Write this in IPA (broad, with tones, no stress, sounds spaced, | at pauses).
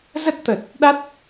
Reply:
z ə˦˥ t̚ t̪ ə˨˩ t̚ | ɗ a˦˥ t̚